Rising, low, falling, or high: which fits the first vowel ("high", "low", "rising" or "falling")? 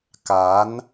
rising